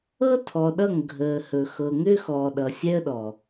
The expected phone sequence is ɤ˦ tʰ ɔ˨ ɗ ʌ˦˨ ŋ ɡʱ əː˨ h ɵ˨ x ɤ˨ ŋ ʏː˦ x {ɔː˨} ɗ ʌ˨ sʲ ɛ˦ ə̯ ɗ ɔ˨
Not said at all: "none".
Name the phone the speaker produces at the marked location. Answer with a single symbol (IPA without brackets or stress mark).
ɔː˨